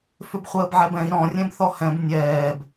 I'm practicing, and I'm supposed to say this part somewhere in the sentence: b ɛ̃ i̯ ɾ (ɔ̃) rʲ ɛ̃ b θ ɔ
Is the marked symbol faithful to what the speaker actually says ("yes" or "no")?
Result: yes